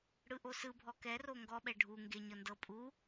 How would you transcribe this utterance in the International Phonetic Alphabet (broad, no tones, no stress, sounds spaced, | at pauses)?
ɽ ɯ ʔ o s ɯ bʱ ɔ k ɛ r o ŋ ɡ ɔ ɓ ɛ ɖʱ u ŋ ɡ e ɲ ɤ n d ɤ pʼ u